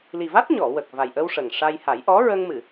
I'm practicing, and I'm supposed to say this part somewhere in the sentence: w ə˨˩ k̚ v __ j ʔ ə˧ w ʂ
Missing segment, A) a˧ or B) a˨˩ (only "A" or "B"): B